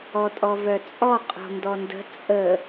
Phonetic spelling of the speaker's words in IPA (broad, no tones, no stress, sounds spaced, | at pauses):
ɔ tʼ ɔ v œ t͡sʼ ɔ qʼ o̤ n d ɔ n d ə̤ t͡sʼ ə